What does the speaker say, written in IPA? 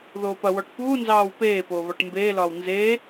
ð oː p ɐ w ɔ ʈ p uː n z ɑː w p eː p oː β ɒ ʈ m b eː l ɒː w n z eː

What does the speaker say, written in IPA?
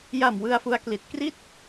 j a˨˩ m w ɯ˧ a̯ f u˦˥ a̯ k l i˨˩ t̚ k r i˥˩ t̚

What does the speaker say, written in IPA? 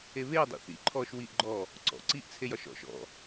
e β e dˤ ḛ θ ḭ ǃʰ ɔ ʃ w i ʔ ɡ͡ǃ ɔ | ǀ ɔ̰ ǀ i ʔ t͡sʰ e j ɒ ʃ ɔ̰ ʃ ɔ̰

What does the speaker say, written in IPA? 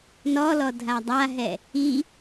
n ɔ l ɔ dʱ a dˤ a ɦ ɛ | i

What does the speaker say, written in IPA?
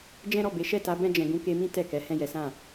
d͡ʒ ɛ̃˦ ɾ ɔ˦˨ b e˨˦ ʃ ɛ˦˨ t a˨˦ b ɛ̃˦ d͡ʒ ɛ̃˧ ɡ ũ˧ k e˧ m ĩ˦ t ɛ˦˨ k ɛ˨˦ h ɛ̃˦˨ j ɛ˨˦ s ã˦˨

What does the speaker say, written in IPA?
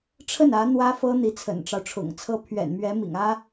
ʈ͡ʂʰ ə˥˩ n ä˧˥ n̪ w ä˥ f ɤ˥ n̪ i˧˥ t͡sʰ ə̰˨˩ n ʈ͡ʂ ɑ˦ ʊ̯ ʈ͡ʂʰ ʊ̰˨˩ ŋ t͡sʰ ɤ˥˩ pʰ ɥ ɛ̰˨˩ n m ɥ ɛ˧˥ m ḭ˨˩ ŋ ä˥

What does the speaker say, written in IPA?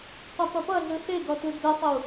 qʷ ʌ p ʌ p ʌ ɮ ɯ ɬ e ɡ ɔ t ɯ d͡z e sˤ ɘ u̯

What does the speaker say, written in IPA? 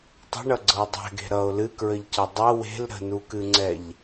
tˤ ə̤ ɳ ʌ ɡ͡ǀ ɤ o̯ dˤ ɛ̤ ɡ e̤ ɾ ʌ o̯ l ɨ k ɹ ə ʎ c ʌ dˤ ɤ w e̤ l ɾ ə̤ n u k ɨ ŋ͡ǀ ɛ ʎ

